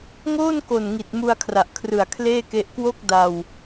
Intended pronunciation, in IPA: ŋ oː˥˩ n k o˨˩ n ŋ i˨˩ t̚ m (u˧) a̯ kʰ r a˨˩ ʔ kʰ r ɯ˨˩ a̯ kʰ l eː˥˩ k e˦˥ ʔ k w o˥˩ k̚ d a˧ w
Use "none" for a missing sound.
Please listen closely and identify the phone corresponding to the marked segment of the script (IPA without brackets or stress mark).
u˧